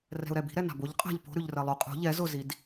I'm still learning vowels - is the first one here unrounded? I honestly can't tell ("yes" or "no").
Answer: yes